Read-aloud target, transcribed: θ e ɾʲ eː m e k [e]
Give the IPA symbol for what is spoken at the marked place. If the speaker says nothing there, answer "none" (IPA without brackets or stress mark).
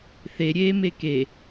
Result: e